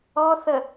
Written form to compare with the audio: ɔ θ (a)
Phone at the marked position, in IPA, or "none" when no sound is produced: ə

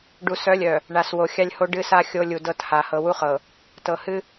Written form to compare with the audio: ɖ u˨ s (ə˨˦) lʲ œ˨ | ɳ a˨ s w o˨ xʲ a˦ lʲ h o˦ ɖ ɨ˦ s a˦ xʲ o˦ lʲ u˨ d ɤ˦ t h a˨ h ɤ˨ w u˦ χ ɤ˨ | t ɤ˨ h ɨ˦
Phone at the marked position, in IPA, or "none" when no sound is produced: œ˨˦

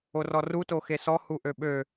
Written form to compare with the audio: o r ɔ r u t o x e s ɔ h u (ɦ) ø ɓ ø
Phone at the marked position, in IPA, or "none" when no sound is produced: ʔ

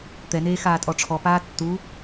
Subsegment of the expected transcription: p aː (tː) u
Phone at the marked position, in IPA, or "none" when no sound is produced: tː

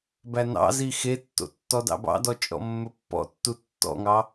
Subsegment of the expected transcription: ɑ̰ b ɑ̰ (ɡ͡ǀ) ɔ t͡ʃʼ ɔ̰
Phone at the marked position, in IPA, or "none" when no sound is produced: d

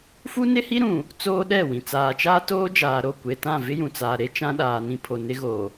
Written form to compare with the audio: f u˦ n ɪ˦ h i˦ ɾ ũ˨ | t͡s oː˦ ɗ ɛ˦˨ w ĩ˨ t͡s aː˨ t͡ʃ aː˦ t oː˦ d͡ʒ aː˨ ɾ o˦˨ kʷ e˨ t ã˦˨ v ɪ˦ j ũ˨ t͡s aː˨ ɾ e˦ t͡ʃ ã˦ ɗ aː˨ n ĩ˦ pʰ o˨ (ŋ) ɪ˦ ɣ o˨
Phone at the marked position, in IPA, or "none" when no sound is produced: n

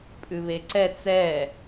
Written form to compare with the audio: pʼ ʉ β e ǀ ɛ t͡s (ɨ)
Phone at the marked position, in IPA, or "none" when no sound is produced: ɛ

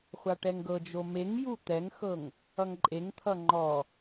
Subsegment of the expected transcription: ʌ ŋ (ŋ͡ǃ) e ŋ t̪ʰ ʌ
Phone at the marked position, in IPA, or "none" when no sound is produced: ǃʼ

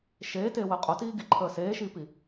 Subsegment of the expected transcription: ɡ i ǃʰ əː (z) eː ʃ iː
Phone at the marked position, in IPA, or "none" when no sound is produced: s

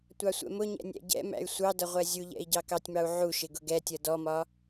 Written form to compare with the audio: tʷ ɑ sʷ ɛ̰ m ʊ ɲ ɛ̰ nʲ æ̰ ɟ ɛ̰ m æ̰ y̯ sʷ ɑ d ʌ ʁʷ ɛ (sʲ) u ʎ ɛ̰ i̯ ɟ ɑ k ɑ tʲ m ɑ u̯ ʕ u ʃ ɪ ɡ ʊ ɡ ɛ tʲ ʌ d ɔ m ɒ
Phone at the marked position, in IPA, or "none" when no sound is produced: zʲ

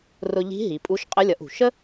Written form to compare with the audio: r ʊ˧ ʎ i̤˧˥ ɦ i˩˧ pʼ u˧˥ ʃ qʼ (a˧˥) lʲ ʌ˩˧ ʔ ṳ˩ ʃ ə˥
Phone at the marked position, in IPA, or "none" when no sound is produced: ə˧˥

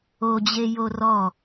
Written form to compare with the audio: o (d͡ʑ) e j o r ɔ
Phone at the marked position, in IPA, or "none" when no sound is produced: d͡ʑ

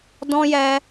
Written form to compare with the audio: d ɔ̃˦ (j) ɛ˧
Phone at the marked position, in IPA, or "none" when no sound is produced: j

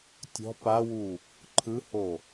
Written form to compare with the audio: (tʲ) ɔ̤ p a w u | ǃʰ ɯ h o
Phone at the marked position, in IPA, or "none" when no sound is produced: tʲ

